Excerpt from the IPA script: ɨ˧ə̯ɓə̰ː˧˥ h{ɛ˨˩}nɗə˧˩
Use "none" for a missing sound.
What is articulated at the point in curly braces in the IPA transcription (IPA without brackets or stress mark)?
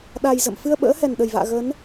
ɛ˨˩